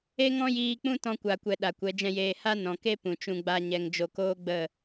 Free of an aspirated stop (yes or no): yes